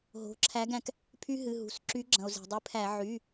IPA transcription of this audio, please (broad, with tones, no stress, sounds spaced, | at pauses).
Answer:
ɦ o̤˩˧˩ ǁʰ æ˨˦ ɡ æ̃˩ k | pʰ y˦ ɦ ɨ˩˧˩ ɦ ṳ˩ s ǁ y˨˦ ɡ͡ǁ ɐ̃˩ o̯ z e̤˩ dˤ ɨ˨˦ pʰ æ˧˩˧ ʕ y˩˧˩